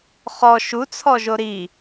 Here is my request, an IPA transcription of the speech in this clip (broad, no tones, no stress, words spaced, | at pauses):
χɔ ʃut͡sʰɔʒo ɾi